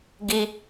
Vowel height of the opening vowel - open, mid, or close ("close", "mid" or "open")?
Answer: close